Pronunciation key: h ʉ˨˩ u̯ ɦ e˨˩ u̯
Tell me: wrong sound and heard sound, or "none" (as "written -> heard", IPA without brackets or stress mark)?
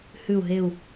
none